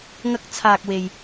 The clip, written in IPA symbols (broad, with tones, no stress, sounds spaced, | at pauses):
ŋ ɐ˥ k̚ t͡sʰ aː˧ k̚ w e˧ j